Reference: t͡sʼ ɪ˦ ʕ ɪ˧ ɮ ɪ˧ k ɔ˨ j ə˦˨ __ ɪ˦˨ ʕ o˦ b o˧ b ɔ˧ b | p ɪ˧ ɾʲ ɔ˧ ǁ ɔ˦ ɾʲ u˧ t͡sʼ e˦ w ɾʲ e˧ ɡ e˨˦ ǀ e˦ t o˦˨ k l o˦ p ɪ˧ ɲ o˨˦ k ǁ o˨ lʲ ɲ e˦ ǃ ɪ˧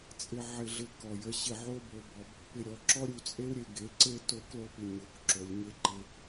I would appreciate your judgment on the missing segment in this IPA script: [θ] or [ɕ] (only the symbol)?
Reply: ɕ